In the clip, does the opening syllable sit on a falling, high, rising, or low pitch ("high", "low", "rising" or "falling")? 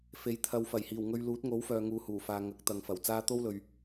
rising